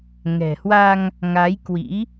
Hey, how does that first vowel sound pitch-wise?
low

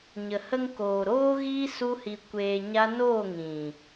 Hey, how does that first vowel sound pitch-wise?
low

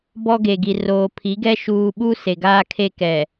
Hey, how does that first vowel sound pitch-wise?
high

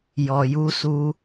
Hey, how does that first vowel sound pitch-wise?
low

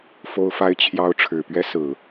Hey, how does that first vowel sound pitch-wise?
high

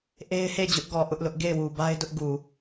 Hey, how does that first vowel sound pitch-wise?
high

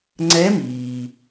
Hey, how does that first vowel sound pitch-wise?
rising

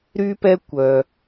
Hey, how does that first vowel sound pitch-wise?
high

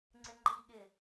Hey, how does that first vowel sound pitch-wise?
low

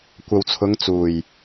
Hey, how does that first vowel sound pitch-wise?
low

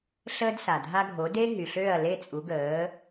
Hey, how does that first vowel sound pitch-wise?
high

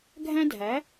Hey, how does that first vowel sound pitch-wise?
high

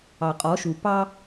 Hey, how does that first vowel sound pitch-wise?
low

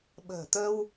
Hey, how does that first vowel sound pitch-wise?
low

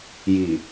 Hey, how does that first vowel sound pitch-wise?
low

